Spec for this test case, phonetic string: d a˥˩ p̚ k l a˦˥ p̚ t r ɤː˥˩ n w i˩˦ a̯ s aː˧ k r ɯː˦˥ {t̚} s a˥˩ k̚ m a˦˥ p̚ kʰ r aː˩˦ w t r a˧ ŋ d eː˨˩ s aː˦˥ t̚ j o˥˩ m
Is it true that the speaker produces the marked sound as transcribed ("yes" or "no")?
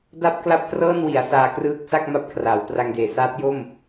no